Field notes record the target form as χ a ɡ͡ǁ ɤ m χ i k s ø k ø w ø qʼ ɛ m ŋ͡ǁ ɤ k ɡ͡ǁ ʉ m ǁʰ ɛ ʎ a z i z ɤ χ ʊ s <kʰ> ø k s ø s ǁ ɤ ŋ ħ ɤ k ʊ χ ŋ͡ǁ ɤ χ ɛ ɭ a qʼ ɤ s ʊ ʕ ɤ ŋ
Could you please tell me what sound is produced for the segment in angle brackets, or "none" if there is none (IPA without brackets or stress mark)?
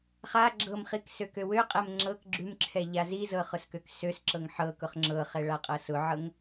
k